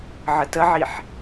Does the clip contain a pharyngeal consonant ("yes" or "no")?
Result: yes